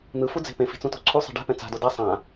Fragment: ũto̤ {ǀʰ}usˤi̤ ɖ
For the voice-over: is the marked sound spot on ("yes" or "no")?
yes